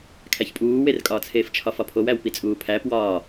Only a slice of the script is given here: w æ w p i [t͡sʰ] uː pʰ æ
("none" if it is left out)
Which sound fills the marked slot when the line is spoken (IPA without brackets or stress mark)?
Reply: t͡sʼ